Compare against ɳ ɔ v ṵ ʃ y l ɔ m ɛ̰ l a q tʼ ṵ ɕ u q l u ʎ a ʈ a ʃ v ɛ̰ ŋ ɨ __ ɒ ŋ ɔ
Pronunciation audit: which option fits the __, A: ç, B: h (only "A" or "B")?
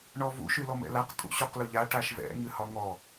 B